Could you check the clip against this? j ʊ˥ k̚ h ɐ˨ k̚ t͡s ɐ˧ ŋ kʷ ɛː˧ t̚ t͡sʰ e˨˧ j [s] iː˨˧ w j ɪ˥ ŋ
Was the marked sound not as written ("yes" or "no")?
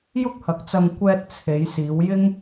no